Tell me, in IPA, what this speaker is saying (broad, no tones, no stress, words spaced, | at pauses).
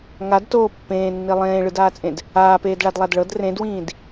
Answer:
ŋadtoː pːẽːnːi lˠẽːɭɯdaːt͡sʼẽd | aːpeːdɭadlˠad ɭɤd rẽdwĩːd